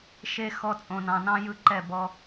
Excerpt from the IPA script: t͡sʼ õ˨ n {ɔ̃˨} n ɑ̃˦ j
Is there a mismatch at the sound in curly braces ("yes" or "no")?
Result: yes